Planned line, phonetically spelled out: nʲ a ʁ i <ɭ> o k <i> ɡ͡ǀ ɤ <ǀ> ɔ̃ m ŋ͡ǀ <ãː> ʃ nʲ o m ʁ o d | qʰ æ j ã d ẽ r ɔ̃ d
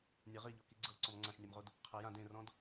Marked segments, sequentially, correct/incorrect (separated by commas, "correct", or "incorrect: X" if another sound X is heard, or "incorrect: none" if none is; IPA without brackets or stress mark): incorrect: ʎ, correct, correct, incorrect: ã